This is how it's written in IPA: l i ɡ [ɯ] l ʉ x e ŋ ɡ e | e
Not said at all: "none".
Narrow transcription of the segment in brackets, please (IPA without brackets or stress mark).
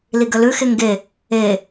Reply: ə